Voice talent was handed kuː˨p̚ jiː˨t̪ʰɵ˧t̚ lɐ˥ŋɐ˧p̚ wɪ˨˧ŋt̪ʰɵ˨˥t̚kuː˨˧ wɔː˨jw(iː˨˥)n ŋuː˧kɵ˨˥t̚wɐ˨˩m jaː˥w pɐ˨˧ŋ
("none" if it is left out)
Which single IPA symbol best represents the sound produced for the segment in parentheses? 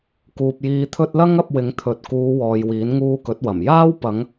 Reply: iː˨˥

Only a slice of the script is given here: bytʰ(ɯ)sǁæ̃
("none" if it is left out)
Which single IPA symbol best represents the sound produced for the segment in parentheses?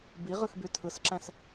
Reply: ɯ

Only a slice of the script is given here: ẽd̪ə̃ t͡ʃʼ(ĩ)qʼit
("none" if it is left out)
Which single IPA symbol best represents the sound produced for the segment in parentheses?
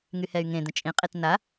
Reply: ĩ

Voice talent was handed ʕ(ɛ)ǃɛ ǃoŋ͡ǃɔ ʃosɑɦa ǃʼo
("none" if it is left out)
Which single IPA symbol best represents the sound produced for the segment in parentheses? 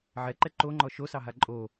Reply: ɛ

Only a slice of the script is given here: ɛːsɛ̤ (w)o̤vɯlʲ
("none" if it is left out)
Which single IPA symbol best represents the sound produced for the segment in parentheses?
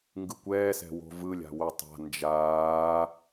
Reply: w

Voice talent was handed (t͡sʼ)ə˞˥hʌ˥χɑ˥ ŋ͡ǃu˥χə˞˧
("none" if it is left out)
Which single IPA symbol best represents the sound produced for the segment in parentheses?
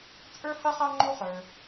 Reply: t͡sʼ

